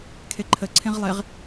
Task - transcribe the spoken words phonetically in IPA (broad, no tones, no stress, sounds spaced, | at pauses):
kʰ e ǃʰ ə ǀʰ ẽ ʁ lˠ e ʁ